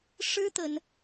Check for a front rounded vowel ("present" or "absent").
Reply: absent